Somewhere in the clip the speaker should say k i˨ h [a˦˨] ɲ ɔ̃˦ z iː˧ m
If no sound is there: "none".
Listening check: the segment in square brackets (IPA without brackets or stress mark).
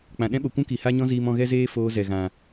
a˦